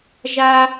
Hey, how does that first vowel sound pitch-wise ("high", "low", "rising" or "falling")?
high